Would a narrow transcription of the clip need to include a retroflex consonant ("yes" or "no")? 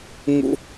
no